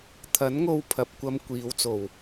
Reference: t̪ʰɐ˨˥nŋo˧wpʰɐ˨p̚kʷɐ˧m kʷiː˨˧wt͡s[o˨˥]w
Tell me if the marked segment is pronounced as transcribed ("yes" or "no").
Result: no